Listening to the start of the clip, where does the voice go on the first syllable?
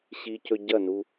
low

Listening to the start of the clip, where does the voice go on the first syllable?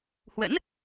rising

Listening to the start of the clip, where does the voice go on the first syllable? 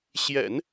low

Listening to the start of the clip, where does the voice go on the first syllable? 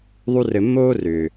high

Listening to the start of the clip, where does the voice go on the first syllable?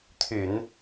low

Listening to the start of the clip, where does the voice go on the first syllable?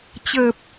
low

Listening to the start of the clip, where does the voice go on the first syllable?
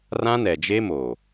high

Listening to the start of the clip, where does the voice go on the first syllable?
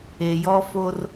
low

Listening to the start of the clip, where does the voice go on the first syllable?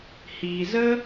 low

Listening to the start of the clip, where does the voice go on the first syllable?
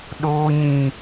high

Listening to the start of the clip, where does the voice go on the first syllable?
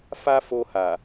high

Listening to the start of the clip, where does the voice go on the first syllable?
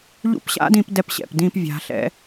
high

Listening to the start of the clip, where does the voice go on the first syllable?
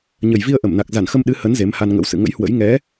low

